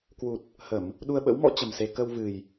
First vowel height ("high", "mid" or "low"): high